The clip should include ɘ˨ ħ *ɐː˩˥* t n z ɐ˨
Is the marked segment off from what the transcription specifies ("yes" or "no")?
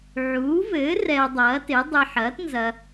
no